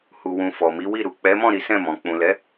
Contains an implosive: no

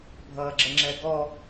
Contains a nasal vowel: no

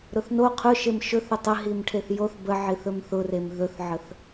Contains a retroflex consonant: yes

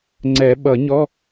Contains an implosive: yes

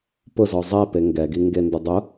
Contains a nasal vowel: no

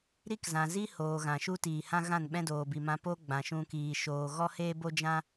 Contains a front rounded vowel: no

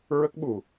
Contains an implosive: yes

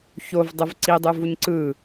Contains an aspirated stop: no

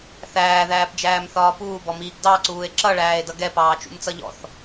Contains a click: yes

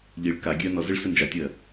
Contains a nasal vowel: no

